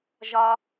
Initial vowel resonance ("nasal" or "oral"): oral